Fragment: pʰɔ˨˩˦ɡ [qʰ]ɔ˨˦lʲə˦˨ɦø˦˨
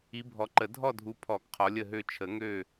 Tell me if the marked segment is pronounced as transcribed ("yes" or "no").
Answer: yes